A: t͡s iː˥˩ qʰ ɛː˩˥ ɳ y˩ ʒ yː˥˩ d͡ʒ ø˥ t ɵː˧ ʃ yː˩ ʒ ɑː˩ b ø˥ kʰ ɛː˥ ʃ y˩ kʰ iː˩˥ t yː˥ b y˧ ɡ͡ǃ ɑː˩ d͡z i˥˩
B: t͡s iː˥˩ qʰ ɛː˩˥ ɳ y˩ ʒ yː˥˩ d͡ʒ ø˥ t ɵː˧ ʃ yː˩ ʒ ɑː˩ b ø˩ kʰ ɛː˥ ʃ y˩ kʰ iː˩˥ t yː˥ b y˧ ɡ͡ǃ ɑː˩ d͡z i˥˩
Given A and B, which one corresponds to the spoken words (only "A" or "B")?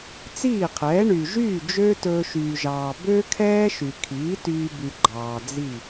A